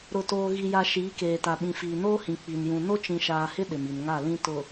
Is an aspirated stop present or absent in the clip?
absent